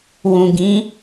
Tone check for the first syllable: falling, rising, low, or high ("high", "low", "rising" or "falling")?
low